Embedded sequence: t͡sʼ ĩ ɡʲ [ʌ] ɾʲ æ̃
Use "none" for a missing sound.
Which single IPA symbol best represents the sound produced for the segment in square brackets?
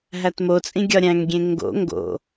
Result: ɒ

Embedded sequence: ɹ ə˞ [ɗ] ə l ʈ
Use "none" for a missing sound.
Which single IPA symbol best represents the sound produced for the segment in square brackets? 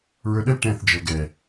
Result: ɗ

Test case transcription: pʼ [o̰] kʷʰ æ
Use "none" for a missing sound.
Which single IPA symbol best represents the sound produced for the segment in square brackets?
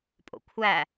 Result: o̰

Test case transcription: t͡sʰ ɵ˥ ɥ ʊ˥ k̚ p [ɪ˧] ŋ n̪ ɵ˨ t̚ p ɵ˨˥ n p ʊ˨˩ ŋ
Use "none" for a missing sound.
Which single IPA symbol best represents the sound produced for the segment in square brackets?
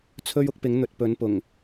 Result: ɪ˨˥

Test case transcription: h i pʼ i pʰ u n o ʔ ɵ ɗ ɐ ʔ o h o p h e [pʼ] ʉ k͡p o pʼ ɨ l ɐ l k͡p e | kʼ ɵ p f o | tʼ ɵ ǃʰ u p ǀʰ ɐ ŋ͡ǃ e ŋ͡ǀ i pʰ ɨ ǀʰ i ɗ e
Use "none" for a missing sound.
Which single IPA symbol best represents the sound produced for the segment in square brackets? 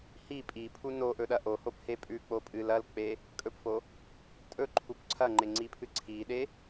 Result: pʼ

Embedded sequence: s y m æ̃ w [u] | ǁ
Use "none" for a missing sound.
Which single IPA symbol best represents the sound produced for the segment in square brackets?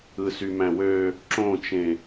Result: ø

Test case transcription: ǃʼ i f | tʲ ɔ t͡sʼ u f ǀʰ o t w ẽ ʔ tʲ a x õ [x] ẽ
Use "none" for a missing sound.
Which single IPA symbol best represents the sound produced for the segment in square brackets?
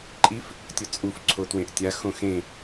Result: x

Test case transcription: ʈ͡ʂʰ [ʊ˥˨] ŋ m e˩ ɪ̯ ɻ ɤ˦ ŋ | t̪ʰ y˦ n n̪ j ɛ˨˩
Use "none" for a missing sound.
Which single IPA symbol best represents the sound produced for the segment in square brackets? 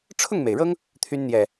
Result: ʊ˥˨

